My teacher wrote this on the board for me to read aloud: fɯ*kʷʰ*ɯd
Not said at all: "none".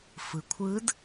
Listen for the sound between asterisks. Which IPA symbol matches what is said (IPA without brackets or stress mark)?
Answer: kʷʰ